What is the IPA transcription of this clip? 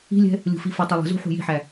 i̤lʲɛ̤ | lʲṳfifʌ tˤʌlˠə̤zṳ ħṳji̤ħæ

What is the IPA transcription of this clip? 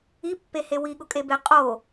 ipːehe wiɠʊkʼebe qʼo

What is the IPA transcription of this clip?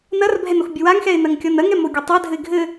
nɐrbʱɛnoxbʲɘ waŋxɛɪ̯nɐŋkʲɔn ɐŋɛmoɡʲɐ tˤadʱɘɪ̯ ɡʱɘ

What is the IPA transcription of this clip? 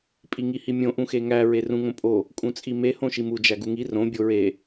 pʼiŋihimʲõ ʔũxeŋæ ɹerũŋõpʼo | kʼũt͡sʼime hõʃimu d͡ʒæɡuŋi rõ bʲoɹe

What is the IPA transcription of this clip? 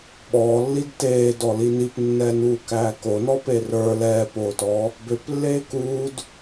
ɓɔːlːid teːdɔli nipnːɛːnuːkæː konɔpe rə˞ lɛːpoːtɔː | bøplːeː kuːd

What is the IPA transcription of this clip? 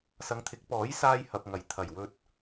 sɐ˨˧ŋt̪ʰɪ˨˥k̚ pɔː˨˥jsaː˧j hɐ˨p̚ŋɐ˨˩jt̪ʰɐ˨˩j wɵ˨t̚

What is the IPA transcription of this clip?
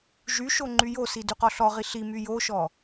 ʒyʃo ŋ͡ǃyjosi dyqɔɬɔʁi ɬimy joʃɔ

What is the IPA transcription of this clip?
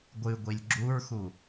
ɡʷɨɡʷilʲ ɡ͡ǁuɹxu

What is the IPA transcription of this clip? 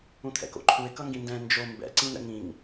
ũt̪ʰɛ̰ko̰ǃʰuɪ̯ kʌŋɡĩndɛ̃ nd͡ʒo mbɛ̰ ǀĩn̪ɛ̰ŋĩŋ

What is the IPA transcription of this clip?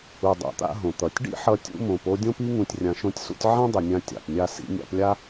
u˩dˤa̰˩t̪a̰˧ ɦõ˩t̪ʌ˩tʲɖḭ˥ħʌ˧ tʲṵ˧mõ˩po˧ dʲõ˥pi˥ ŋũ˧tʲrʲã˧ʃõ˥tʲsṵ˥tʲ ʕã˥ dˤʏ˩nʲã˧ tʲa̰˩pnʲa˥ sḭ˧nʲa̰˧plʲa˥

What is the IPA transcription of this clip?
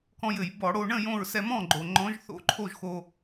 kɔ̃˧jɘ˧˩˧j bɔ˧˩˧ɽo˧ ɳə̃˥˨ jõ˥˨ɹ sɛ˧mɔ̃˥˨ɡ͡ǃo˩ ŋ͡ǃɔ̃˧˥ʒθo̰˧˥ǃʰo˥˨ʒxo˧

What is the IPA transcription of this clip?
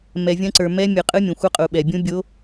mɛ˩vʲɐ̃˧˥ǀə˞˩ mɛ˧˥mʲɯ˩qʼɯ˧˥ mʲõ˩xʷə˧˥qʼu˩ ɓɛ˩bʲũ˧˥bʲo˧˥

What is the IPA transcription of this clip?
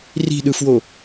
ri̤ɗɯfwo

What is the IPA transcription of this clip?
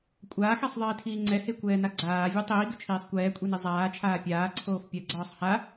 kʷʼaːxɛsˤðˤiːtʰiː ŋ͡ǀɛhekʷɛːna ɡ͡ǀaːvʲe tˤiːɡʏt͡ʃʰiːsˤ kʷɛːkʷʼini zˤaːt͡ʃʰaː pʲaːǀʰoːf pʲɜɡ͡ǀɒːsˤ ha

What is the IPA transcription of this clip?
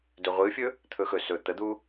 dɵʁʷɨfʲɵ | t̪ʰɵxɵ sɵ t̪əd̪u

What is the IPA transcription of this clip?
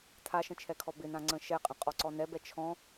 tʰaʃə̃t͡ʃʰɛkʰɔ bɪnãŋ͡ǀə̃ ʃɛqʼə̃qʼɔǀɔ nɛbɛ t͡ʃʰɔ̃

